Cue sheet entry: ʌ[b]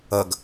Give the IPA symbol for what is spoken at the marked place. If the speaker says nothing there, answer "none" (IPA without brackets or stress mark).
ɡ